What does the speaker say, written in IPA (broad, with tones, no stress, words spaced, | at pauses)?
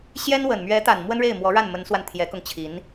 ɕjɛ˥nwə˨˩n mɥɛ˧˥t̪a˨˩n mwə˥nɻe˥˩ɪ̯mwɔ˧˥ɻa˥˩n mə˧˥nswa˧n t̪ʰjɛ˧˥kʊ˧ŋt͡ɕʰi˧˥n